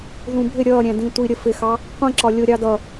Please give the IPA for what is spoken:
ðũbʱɪ ɾʲʌː ɾʲæ̃dĩtʷi ɾʲəfɪxɑ | qʷĩǁɒ lʲʊɾʲɑ dʌ

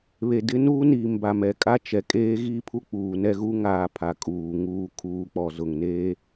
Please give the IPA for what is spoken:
βe˨ dɪ˦nuː˦ niː˨mba˨mɛ˨kʼa˦ t͡ʃɛ˨ kʼeː˦ɣiː˦pʰu˦ k͡puː˨nɛ˦ɣu˦ ŋaː˨ pʰa˨ kʼuː˨ ŋuː˨kʰuː˨ k͡pɔ˨zʊ˨ŋneː˦

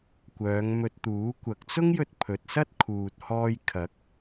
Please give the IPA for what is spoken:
kʷœː˨˧ŋmɵ˧t̚t̪uː˨˥ kʷɐ˨k̚t͡sʊ˥ŋjɵ˧t̚ pʰɵ˨t̚sɐ˥t̚ kʰuː˨t̚hɔː˧jkʰɐ˨˥k̚

